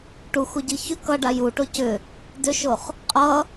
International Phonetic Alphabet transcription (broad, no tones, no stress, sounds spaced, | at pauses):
ʈ u x u ɟ i ç ʏ k ʌ ɖ a j u ʈ o c ʏ | d ʏ ʃ o χ | qʼ ʌ